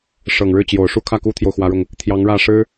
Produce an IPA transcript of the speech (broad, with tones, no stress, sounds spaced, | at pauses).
ʂ ɤ˨˩ ŋ ɻ ɻ̩˥˩ t͡ɕ j o˨˩ ʊ̯ ʂ u˥˧ kʰ ä˥˩ k u˥ t̪ʰ j o˨ ʊ̯ x w ä˧˥ ɻ ʊ˧ ŋ | t̪ʰ j ɑ˧˥ ŋ ɻ ä˥˩ ʂ ɻ̩˥